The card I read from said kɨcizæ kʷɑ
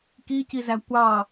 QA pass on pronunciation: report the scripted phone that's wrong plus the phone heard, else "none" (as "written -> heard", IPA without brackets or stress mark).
ɨ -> i